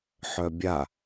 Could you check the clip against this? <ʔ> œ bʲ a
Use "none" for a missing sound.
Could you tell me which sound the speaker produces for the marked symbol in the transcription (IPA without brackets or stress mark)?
ħ